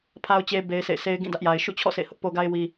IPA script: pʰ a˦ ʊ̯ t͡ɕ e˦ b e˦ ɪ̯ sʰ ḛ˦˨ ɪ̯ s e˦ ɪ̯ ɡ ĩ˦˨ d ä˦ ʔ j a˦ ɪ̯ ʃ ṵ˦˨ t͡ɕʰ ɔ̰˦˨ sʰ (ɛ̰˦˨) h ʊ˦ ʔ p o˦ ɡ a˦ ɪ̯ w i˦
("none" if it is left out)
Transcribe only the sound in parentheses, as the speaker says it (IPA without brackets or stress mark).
ḛ˦˨